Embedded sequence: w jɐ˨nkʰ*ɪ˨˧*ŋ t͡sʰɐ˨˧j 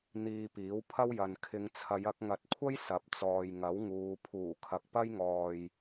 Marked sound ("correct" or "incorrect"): correct